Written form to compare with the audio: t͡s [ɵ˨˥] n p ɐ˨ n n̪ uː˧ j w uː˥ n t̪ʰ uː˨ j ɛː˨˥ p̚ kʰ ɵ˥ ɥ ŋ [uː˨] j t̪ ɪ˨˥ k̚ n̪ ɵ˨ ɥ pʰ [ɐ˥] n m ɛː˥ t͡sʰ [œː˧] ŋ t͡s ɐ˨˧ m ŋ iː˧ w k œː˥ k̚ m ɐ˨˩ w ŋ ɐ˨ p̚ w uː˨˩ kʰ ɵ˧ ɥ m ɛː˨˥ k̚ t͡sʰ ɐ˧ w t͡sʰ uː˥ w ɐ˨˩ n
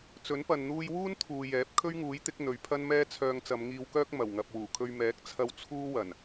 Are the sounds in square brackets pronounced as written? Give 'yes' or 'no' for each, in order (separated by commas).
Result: yes, no, yes, yes